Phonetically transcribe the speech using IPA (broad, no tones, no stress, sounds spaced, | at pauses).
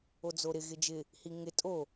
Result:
o d͡z o ɾ ɪ ɣ ɪ d͡ʒ ɪ | h i ŋ ɪ tʼ o